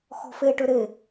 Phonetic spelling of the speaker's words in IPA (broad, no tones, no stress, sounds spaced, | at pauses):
x ɔ̤ f e ʈ ø ɾ e